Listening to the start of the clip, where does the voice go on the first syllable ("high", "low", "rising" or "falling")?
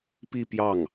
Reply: falling